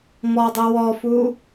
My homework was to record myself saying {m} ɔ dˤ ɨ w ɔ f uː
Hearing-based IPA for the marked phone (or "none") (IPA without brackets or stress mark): m